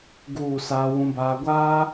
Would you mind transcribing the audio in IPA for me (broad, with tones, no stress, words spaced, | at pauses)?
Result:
ɡuː˦˨saː˦ wũ˦baː˦ ɡʷaː˦